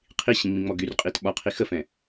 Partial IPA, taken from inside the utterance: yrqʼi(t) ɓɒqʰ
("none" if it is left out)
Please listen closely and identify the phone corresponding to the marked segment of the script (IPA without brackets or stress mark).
t